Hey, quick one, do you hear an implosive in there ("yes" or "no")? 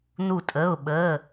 yes